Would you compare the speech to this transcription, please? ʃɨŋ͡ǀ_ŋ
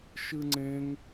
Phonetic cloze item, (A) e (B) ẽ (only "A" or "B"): B